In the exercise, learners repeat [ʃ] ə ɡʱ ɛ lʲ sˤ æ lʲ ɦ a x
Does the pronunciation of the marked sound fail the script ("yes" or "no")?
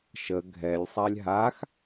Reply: no